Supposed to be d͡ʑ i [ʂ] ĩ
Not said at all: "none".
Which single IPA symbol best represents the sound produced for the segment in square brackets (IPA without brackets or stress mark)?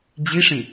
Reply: ʂ